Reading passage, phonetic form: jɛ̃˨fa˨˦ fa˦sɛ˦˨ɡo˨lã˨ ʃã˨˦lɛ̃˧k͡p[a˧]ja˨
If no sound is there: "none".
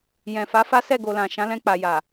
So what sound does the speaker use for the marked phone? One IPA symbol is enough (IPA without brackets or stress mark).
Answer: a˨